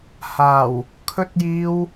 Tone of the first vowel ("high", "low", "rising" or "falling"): low